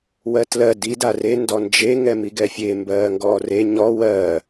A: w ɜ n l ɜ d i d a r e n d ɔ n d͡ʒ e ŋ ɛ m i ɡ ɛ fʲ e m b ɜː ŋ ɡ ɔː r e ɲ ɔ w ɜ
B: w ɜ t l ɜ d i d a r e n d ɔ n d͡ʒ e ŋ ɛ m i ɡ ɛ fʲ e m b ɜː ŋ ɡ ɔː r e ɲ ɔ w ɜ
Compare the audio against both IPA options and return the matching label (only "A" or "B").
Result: B